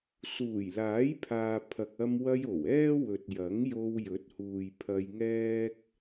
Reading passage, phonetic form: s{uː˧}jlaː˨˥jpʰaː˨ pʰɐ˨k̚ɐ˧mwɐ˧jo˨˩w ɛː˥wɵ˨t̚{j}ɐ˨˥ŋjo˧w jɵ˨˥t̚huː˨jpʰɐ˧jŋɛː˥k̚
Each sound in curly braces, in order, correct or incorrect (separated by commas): incorrect, correct